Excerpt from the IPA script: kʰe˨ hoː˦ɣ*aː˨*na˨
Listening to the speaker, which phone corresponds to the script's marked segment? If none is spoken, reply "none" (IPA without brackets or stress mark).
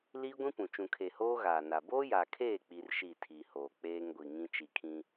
aː˨